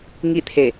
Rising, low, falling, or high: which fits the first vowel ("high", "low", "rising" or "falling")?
falling